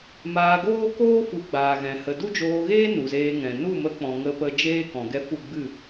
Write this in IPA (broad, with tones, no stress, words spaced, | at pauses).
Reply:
maː˧ɡoː˦koː˦ fu˨˦ɡ͡baː˨ɣɛ̃˨ hə˨ du˦d͡ʒoː˧ɣeː˦ nu˨zeː˧ŋɛ̃˨ nu˦˨mə˧k͡pɔ̃˨ ŋə˧pə˧ d͡ʒeː˦ kɔ̃˨ɡɛ˧ fu˦˨ɡ͡bɨ˦˨